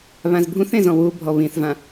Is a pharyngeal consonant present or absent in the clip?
absent